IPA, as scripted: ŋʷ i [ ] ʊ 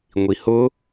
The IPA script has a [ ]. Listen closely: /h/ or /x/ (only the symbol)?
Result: h